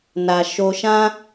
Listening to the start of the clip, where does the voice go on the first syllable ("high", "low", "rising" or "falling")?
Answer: low